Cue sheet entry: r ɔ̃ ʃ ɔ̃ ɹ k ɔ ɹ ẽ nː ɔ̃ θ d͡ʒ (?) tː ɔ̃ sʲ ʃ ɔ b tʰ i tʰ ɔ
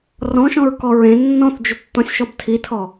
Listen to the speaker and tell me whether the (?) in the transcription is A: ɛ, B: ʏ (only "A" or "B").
B